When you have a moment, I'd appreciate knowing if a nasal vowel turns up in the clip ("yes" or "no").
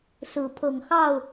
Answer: no